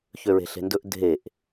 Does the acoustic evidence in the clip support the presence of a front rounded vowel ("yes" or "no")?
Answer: yes